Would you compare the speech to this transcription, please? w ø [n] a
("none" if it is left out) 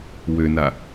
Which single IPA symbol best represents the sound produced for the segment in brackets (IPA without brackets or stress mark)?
n